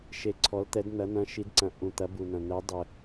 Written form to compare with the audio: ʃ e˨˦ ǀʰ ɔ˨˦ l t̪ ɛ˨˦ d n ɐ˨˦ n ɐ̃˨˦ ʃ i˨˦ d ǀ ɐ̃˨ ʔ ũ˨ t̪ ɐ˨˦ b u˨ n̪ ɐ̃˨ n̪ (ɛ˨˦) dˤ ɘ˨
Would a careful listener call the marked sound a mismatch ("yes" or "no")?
no